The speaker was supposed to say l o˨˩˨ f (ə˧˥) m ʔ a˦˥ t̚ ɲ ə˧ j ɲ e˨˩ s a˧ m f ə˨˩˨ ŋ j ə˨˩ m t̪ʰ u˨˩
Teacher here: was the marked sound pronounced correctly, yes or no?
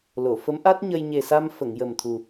yes